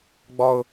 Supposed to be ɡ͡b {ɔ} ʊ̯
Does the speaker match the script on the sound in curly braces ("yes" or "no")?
yes